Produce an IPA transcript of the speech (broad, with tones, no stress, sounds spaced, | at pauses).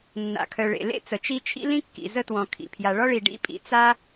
nː a̰˩ kʰ œ˩ ɭ ḛ˩ l ḛ˥ t͡s ə˩ t͡ʃ i˥ t͡ʃʰ ḭ˥ l ĩ˥ kː ḭ˩ z ə˥ t w ɔ̃˩ kʰ ḭ˩ pʰ j a˩ ɭ ɔ˥ ɭ i˩ ɖ ḭ˥ pʼ ḭ˩ t͡s a˥